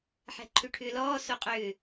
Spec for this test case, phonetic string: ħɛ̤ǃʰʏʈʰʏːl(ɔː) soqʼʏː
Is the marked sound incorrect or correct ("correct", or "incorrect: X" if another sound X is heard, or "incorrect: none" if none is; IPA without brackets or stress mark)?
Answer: correct